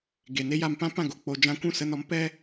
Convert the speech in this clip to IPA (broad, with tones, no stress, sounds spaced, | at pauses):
ɡ e˨ n e˦ j a˧ m p ã˦ p ã˦˨ ɡ o˨ k͡p o˧ d͡ʒ ã˧ kʷ ũ˦˨ s ə˧ n ɔ˨˦ m p ɛ˦